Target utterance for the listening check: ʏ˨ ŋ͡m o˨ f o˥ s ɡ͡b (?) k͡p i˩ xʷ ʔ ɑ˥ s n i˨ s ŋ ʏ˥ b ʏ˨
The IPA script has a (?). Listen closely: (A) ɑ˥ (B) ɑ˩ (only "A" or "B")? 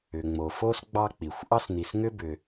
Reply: A